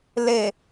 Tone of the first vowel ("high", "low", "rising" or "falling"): low